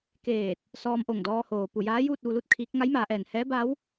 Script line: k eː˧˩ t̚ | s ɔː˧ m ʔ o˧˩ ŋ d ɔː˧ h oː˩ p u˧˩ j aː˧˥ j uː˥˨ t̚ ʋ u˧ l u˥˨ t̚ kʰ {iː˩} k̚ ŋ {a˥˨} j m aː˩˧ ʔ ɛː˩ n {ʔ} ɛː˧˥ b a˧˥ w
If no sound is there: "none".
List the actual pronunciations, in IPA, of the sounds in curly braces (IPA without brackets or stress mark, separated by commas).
iː˧˥, a˧˥, h